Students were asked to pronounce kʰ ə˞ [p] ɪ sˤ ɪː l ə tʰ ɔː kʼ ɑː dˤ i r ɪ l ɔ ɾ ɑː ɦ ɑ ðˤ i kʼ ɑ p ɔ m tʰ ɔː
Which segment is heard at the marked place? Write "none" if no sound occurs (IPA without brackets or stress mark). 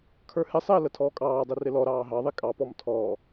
h